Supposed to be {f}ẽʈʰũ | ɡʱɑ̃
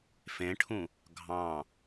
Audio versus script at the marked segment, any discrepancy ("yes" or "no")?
no